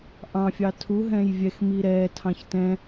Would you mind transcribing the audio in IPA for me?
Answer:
ʔ ɑ̃ fʲ ɑ tʰ u ɦ ɛ̃ j vʲ ɛ x m i ɾ ɛ tʰ ɑ̃ ç t ɛ̃

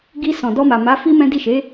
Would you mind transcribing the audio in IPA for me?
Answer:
ɡ i˧ s ɔ̃˨ d ɔ˧ m a˨ m a˨˦ f i˦ m ɛ̃˦ d i˦˨ ʃ e˨˦

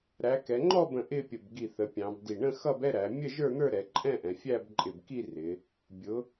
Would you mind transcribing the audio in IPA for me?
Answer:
ɾ æ˩˧ k ɛ˩˧ ŋ͡ǃ ɔ˥˧ b ə̃˧˩ ʔ ɪ˥˧ pʲ ə˧˩ b ɡ i˧˩ θ ə˩˧ pʲ ɑ̃˩˧ b d i˧˩ ɳ ə̃˥˧ x ʌ˥˧ b ɛ˥˧ ɾ æ˩˧ mʲ ə˥˧ ʒ ə˞˥˧ n̪ ə˞˥˧ ɾ ɛ˩˧ ǃʼ ɛ̃˥˧ ʔ ɛ̃˩˧ fʲ æ˥˧ b ǃʼ ɪ˧˩ b k i˥˧ r ɪ˩˧ | bʲ ʊ˩˧

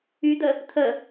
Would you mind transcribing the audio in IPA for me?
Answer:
y d̪ ə | t̪ʰ ə

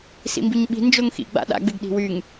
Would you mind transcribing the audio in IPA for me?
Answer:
s ḭ m b i ɲ ɓ i̤ n d͡ʒ o ŋ x ḭ ɡ͡b a̰ ɗ a̰ ɡ͡b ɪ ɡ ɗ i̤ w y ŋ

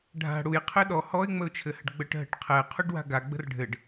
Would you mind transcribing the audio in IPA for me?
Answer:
ɖʱ a̤ ɽ u j qʰ ɘ ɗ ɔ h ɔ ɪ̯ ŋ͡m ə ʊ̯ t͡ʃʰ ɘ h ə̤ ɖ ɡ͡b ə ʈ ɦ ə̤ ʈ qʰ ɛ qʰ u ɖ w a̤ ɡ a ɡ͡b ə̤ r ɖʱ ɘ ɖ

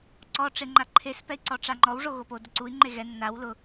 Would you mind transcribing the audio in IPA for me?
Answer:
ǀ ɔ ʈ͡ʂ e ŋ͡ǃ a ǃʰ e s p ɛ i̯ ǀ ɔ ʈ͡ʂ a ŋ͡ǃ ɔ w ʐ o ɣ o p o d ʊ ǀ u i̯ ŋ͡ǃ e ɣ ɛ nː a w l ʊ

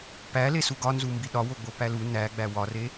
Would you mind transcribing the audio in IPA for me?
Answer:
p æ l e s u ɡ ɒ n z u m b i ɗ ɒ w o ɡ͡b o p æ l u n æ ɡ͡b æ w ɒ r e

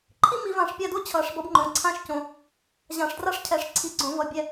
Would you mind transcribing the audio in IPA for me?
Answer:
ǃʰ i˥ m i˨˩˦ v ã˨˩˦ ʂ pʲ a˦˨ d o˥ t͡ɕʰ ʌ˨˩˦ ʂ b ʌ˨˥ b ŋ͡ǃ õ˩˧˩ ǀʰ ã˥ ʃ c õ˩˧˩ | ʑ ã˨˩˦ ʂ d r a˥ ʂ cʰ ɛ˨˩˦ ʂ ǀʰ i˨˥ ɡ͡ǀ õ˨˩˦ v ʌ˩˧˩ bʲ ɛ˦˨

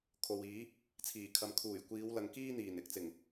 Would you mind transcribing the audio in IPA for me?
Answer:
kʰ o˨ w iː˨˥ | t͡sʰ iː˨˩ kʰ ɐ˨ m kʰ uː˨˩ j kʷ iː˨˧ w l ɐ˨˧ ŋ k iː˥ n̪ iː˨˩ n ɪ˨˥ k̚ t͡s ɪ˨˩ ŋ

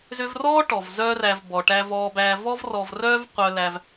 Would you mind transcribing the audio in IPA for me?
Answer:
z ʏ˧ v r ɔː˥ ʈ ɔ˩ v z œː˥ r æ˧ v b ɔ˩ ʈ æ˧ v ɔː˧ b æː˧ v ɔ˥ v r ɔ˧ v r œː˥ v qʷ œ˧ l æ˧ v

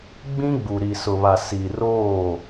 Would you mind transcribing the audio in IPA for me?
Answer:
ɡ͡b ĩ˦ ɡ͡b u˨ ɾ i˨ s ʊ˨ β a˨ s i˨ r oː˦˨

